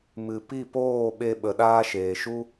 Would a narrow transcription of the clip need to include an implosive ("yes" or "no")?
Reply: yes